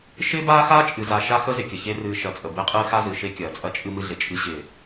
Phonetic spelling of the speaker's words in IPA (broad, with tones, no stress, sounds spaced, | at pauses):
ʃ ɪː˦ b aː˦ x aː˦ t͡ʃʼ ɨ˨ z a˨ ʃ a˦ x ə˦ z ɪ˨ kʲ ə˨ ç e˦ r ɨː˨ ʃ ɐ˨ t͡sʼ ə˨ b ɪː˦ qʼ ɨː˦ x a˦ z ɨ˨ ʃ e˦ kʲ ɐː˨ t͡sʼ ɐ˦ t͡ʃʼ ɨ˦ m ɨ˦ ɮ ɪ˨ t͡ʃʼ ɨ˦ ɕ ɪː˨